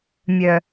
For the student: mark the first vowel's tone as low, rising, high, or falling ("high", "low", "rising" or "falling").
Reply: low